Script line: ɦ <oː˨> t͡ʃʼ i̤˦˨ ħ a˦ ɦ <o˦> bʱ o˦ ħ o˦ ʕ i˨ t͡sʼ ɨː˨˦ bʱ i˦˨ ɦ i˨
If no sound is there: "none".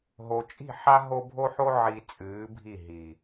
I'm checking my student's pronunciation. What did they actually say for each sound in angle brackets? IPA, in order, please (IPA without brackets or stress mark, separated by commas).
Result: o˨, o˦